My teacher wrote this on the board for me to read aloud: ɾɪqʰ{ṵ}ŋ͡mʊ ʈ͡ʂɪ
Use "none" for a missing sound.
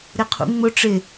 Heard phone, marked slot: ṵ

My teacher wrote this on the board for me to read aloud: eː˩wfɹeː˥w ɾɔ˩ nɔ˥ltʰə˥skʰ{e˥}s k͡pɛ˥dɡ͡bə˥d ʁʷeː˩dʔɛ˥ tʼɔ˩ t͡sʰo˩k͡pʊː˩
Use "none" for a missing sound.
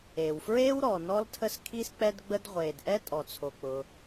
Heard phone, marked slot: i˥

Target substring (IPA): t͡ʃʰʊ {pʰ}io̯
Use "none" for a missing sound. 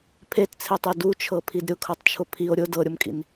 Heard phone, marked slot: pʰ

